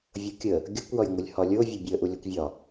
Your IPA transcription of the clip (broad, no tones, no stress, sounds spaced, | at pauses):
vʲ o kʲ ə | ɡʲ o kʷ j ɒ j ŋʷ ʌ lʲ h ɒ lʲ o vʲ ʌ bʲ əː ʔ u lʲ ɒ kʷ vʲ ɒ